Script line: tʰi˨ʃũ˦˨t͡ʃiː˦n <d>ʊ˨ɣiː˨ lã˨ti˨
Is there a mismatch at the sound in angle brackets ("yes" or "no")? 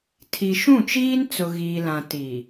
yes